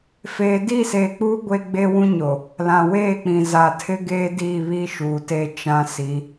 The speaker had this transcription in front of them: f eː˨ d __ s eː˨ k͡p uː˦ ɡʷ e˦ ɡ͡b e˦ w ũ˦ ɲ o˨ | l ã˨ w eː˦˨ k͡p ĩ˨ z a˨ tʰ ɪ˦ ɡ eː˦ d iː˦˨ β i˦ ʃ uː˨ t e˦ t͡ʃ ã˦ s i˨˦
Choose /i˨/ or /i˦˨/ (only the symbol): i˦˨